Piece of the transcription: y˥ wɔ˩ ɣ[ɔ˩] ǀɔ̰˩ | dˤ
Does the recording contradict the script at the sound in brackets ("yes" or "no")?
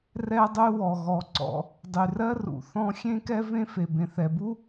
no